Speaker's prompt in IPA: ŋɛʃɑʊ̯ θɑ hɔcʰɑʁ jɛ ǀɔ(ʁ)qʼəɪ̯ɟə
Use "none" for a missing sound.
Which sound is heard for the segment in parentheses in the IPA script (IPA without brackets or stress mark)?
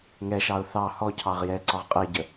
ʁ